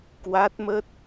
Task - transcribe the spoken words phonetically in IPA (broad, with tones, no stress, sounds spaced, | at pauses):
k w a˦˥ t̚ m ə˦˥ t̚